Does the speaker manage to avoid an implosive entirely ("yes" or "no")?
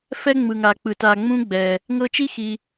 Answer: yes